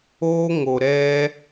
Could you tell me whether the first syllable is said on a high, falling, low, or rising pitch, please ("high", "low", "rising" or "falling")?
high